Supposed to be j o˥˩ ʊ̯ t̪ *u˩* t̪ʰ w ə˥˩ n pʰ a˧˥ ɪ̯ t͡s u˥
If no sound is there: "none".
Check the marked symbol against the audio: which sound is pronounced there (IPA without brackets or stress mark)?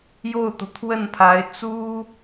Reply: u˩